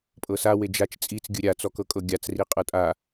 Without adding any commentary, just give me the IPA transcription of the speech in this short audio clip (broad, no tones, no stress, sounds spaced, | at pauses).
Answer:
pʼ ɤ s a w e d͡ʒ a t͡ʃ t͡sʼ i t͡s ɡʲ ɯ ɾʲ a t͡s ɔ k ɤ kʼ ɤ ɡʲ a t͡s r i qʼ ɤ tʼ a